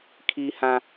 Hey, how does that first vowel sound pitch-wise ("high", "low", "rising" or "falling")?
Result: high